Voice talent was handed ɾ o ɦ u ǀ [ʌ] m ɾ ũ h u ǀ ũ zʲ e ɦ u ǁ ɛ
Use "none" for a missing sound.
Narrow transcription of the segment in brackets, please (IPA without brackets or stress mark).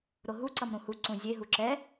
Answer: ʌ